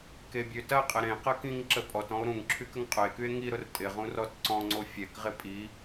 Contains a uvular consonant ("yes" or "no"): yes